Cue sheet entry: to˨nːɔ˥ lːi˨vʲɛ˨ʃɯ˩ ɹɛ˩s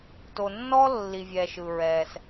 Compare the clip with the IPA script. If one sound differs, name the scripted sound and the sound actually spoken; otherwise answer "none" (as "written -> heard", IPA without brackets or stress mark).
none